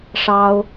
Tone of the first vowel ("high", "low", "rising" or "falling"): high